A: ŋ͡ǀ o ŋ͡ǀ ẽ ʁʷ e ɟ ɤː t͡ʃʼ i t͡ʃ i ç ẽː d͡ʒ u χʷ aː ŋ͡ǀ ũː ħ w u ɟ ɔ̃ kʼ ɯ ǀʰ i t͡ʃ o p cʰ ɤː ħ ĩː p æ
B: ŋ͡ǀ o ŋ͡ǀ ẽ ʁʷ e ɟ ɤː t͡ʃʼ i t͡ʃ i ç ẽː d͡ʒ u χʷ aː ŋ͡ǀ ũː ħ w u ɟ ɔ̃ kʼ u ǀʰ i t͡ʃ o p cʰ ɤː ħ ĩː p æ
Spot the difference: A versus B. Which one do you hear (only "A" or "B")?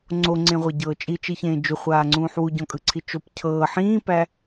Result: A